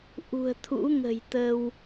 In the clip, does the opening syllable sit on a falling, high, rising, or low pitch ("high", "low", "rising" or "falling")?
low